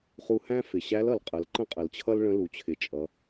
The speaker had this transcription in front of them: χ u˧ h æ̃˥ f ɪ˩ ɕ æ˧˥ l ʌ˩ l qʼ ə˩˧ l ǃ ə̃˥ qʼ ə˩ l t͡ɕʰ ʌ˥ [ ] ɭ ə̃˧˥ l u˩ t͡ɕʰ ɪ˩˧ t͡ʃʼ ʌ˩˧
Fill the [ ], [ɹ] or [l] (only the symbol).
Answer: l